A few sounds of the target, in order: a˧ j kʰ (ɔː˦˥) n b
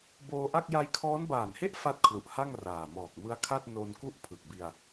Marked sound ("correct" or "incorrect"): correct